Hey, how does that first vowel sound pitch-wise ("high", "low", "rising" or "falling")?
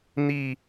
falling